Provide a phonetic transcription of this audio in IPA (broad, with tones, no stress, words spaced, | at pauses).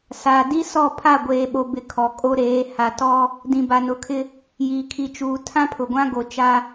saː˨di˦sɔ˦˨ pʰa˦˨ɡʷeː˨ɓo˨bɪ˨ kʰɔ˨kʼo˦ɾeː˨˦ ha˨tɔ˦ | dĩ˨ba˨nʊ˨˦kʰɪ˦ | jiː˨kʰi˨ t͡ʃuː˨ tʰã˦pʰʊ˨ɡʷã˦ ɡo˨t͡ʃa˦